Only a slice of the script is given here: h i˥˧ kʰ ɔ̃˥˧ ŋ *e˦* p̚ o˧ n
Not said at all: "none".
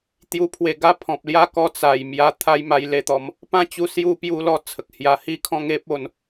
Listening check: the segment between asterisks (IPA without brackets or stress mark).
e˦